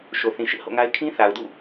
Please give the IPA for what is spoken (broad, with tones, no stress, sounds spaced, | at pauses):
ʃ o˨ θ ĩ˨ ʃ ɪ˦ ʔ h o̰˦˨ ŋ a˦ ɪ̯ kʰ ĩ˦ θ a˨ ʊ̯ d ṵ˦˨